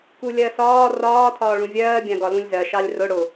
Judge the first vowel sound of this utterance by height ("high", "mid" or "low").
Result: high